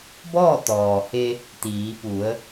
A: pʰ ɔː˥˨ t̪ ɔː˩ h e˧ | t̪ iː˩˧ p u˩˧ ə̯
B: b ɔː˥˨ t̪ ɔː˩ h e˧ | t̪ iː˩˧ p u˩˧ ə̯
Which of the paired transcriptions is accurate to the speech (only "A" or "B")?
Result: B